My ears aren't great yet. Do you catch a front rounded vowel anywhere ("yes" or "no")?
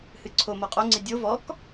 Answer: no